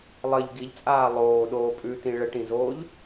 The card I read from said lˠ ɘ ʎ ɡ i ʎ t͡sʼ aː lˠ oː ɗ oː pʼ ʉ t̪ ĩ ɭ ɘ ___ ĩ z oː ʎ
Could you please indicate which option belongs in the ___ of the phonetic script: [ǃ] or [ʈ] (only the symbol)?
ʈ